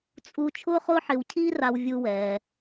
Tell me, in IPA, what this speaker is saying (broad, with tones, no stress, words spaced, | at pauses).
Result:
t͡sʼu˥ t͡ʃʰʊː˥χʊː˥ħ ɪ˧wcʰiː˥ ra˧w vʲu˧wɛː˩